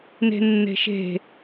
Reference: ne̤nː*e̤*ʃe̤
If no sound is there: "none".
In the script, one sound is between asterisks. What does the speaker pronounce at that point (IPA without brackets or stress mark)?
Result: e̤